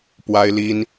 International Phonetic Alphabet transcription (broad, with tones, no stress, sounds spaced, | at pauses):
p w a˥ ɪ̯ l i˥ n